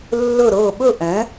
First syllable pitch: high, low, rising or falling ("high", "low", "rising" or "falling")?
falling